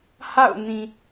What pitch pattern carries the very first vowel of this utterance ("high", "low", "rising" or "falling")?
falling